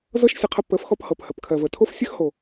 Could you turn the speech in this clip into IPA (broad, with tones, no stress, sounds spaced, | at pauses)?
z ɤ˦ ʃ sʲ ə˧ qʰ ə˧ p ə˨˦ f x ɔ˧ p h ɤ˨ p h ə˨ p kʰ ɜ˨ v ə˨ tʰ o˦ f sʲ ə˦ x h o˨